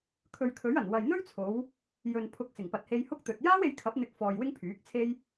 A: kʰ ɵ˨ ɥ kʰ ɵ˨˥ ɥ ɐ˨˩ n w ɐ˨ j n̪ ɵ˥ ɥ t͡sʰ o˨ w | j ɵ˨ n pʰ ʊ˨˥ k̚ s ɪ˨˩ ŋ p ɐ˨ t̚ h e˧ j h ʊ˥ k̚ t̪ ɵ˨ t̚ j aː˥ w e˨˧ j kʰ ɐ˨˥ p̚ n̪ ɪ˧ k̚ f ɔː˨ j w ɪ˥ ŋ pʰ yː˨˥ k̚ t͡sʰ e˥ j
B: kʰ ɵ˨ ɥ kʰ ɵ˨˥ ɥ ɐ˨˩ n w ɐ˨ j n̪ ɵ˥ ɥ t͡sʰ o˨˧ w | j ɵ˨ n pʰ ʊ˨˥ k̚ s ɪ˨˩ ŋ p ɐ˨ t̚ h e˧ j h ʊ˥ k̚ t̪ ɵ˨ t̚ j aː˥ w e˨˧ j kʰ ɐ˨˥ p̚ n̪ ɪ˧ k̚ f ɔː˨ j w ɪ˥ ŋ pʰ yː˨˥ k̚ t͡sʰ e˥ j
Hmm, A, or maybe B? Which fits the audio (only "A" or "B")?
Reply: B